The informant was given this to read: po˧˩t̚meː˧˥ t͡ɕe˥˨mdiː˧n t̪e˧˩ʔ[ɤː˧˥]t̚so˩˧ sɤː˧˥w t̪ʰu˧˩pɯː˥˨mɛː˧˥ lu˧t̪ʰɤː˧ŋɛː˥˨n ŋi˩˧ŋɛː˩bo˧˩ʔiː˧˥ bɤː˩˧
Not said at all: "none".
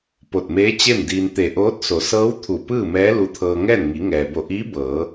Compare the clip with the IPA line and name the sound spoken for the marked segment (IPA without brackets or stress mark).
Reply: oː˧˥